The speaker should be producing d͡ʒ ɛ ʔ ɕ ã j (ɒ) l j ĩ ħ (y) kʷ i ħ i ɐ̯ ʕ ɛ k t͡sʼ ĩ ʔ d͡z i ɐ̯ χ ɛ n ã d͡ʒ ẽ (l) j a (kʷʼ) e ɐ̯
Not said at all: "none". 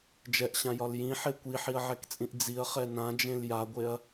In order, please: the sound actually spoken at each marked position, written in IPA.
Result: ɒ, e, l, ɡʷ

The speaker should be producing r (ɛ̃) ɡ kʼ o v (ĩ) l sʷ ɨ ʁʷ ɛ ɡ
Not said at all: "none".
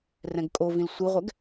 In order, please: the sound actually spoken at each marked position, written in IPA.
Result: ɛ̃, ĩ

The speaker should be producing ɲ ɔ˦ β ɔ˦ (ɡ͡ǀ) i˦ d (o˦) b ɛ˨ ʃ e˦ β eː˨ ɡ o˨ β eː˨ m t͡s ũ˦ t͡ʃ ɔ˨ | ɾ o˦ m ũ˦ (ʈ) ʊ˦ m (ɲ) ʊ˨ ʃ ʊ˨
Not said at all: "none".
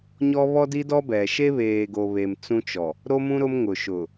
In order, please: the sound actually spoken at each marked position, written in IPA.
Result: d, ɔ˦, ɾ, ŋ

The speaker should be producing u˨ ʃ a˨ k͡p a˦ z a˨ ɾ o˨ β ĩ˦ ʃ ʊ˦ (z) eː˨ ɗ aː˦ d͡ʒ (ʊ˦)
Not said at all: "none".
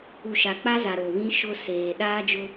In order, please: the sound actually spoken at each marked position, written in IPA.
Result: s, ʊ˦

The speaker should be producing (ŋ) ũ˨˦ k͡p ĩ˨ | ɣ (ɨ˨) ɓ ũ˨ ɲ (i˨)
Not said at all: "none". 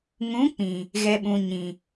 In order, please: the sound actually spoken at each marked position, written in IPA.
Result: ŋ, ɛ˨, ĩ˨

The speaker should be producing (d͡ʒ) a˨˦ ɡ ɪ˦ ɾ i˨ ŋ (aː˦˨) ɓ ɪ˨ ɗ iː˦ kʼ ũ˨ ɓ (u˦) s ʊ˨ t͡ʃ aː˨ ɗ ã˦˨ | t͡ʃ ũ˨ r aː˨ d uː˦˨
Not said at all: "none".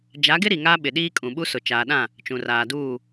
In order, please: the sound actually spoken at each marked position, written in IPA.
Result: d͡ʒ, aː˦, u˦

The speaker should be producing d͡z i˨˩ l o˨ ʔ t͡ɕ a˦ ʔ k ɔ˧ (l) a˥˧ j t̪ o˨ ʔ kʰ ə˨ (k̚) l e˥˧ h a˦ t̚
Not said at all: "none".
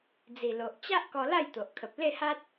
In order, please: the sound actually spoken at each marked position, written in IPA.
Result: l, p̚

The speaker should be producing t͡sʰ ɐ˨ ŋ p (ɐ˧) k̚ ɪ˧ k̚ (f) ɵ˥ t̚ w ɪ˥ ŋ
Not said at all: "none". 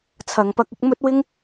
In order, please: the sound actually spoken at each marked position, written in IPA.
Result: ɐ˧, m

